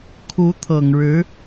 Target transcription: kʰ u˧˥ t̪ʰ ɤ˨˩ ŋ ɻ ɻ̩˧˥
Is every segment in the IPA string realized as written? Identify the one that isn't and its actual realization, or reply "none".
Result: none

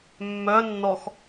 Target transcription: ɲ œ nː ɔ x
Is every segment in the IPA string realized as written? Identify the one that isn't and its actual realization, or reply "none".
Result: ɲ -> mː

